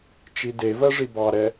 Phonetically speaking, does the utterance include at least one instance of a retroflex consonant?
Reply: yes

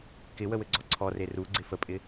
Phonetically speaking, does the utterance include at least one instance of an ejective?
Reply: yes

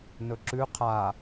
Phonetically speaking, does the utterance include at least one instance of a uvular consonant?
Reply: yes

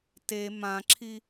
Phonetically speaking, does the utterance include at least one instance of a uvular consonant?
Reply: no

